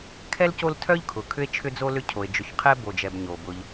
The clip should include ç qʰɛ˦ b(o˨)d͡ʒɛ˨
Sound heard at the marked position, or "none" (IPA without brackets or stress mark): o˨